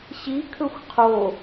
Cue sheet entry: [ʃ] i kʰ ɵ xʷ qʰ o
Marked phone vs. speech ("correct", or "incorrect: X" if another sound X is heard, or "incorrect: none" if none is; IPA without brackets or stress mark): incorrect: ɕ